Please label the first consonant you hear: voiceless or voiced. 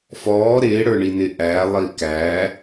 voiceless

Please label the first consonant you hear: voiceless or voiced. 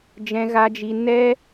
voiced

